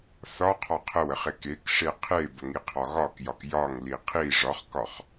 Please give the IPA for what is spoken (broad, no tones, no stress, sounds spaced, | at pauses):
θ ɒ qʰ ɒ qʰ ə w ə χ e k e k ʂ e qʰ e b ə ŋ i qʰ ɒ ɣ ɒ k j ɒ k j ɒ ŋ l i qʰ i ʐ ɒ χ k ɒ χ